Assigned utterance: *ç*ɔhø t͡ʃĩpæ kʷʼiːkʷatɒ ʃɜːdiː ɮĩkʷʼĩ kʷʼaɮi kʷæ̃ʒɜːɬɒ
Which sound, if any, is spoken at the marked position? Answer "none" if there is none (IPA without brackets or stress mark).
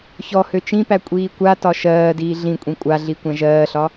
ç